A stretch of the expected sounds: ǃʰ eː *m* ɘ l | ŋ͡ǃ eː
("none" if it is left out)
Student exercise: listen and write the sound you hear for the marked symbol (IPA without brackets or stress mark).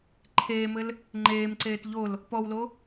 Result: m